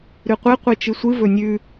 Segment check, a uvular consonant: present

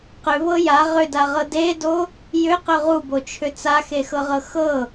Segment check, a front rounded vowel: present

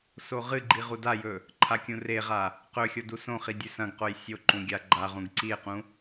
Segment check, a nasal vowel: present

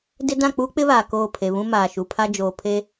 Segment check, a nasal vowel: present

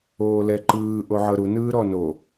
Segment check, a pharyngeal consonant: present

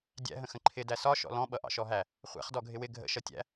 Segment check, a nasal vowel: present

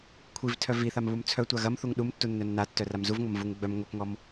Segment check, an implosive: present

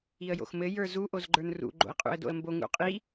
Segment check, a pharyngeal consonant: absent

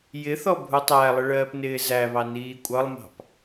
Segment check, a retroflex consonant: present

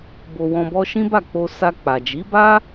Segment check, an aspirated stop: absent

